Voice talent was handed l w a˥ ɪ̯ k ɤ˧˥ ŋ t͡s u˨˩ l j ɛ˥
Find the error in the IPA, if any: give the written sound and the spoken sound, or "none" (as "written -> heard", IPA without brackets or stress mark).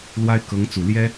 none